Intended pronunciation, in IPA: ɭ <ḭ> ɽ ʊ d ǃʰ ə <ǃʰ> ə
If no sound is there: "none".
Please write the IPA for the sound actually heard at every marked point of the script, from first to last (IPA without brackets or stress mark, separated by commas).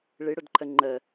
i, ŋ͡ǃ